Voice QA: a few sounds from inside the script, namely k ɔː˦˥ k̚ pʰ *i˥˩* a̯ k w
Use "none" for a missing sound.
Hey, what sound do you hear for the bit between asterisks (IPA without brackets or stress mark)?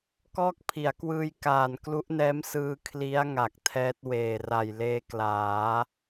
i˩˦